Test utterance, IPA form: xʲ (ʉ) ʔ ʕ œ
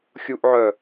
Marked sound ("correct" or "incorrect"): incorrect